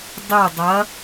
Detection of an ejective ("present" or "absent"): absent